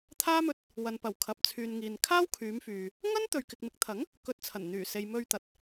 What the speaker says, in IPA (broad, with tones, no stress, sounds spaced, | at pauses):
t̪ʰ aː˥ m ɵ˧ t̚ | w ɐ˨ n p ɐ˨˩ w kʰ ɐ˨ p̚ t͡sʰ yː˨ n ŋ iː˨ n kʰ aː˥ w kʰ yː˨˧ m f yː˨ | ŋ ɐ˥ n t̪ ɵ˨ ɥ k ɪ˨ k̚ m ɪ˨˥ k̚ t̪ʰ ɐ˨˥ ŋ | k ɵ˧ t̚ t͡sʰ ɐ˨˩ n n̪ yː˨˩ s e˨ j m ɵ˧ ɥ t̪ ɐ˨ t̚